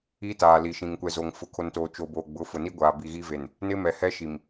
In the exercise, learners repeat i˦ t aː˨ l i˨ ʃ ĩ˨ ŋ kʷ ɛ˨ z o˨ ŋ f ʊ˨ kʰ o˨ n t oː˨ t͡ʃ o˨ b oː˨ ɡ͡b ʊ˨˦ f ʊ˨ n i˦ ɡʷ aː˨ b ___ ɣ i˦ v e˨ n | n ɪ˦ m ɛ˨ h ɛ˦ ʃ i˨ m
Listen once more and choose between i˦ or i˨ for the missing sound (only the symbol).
i˨